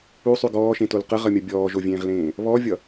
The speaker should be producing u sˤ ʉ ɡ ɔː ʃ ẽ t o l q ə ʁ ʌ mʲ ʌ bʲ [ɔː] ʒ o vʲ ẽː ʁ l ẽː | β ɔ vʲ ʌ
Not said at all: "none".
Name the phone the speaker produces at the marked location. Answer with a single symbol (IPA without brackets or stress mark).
ɔː